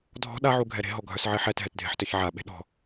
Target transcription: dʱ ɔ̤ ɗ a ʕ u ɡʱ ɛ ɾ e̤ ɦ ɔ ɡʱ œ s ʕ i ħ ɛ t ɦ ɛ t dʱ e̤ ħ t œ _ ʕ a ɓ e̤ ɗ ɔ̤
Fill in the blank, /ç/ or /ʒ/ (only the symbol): ç